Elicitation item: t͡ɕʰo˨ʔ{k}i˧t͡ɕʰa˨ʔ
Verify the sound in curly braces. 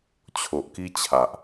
correct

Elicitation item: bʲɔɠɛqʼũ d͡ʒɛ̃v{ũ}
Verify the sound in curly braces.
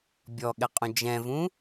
correct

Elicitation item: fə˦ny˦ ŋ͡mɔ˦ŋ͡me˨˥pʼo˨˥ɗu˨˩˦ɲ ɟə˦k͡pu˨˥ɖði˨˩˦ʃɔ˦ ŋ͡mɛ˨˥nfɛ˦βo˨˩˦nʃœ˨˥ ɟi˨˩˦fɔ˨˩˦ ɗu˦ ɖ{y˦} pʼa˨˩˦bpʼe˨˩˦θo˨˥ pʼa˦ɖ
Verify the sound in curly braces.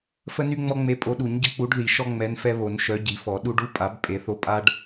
incorrect: u˦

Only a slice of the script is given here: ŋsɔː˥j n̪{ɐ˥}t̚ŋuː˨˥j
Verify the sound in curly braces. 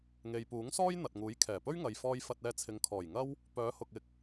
incorrect: ɐ˨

